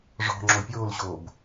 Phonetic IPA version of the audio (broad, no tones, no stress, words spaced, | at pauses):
ʐɔ̤ ŋ͡ǁopʲoːlɕoːb